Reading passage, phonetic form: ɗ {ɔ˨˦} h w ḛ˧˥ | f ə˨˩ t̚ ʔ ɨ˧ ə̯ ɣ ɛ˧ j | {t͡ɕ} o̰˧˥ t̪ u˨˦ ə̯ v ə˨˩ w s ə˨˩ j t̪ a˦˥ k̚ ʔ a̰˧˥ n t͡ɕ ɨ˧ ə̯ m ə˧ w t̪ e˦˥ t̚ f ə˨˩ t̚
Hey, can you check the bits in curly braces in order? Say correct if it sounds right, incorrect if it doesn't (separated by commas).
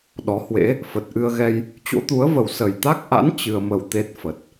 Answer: correct, correct